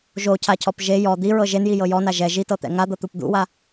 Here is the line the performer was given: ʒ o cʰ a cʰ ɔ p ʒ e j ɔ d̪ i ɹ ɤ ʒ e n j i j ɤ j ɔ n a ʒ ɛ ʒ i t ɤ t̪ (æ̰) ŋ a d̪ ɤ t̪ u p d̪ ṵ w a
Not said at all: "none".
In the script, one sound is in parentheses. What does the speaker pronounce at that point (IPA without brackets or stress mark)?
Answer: ɛ̰